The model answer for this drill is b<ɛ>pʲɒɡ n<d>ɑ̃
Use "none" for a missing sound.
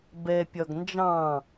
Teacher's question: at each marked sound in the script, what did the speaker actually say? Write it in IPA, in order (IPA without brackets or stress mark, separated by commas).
ɛ, d͡ʒ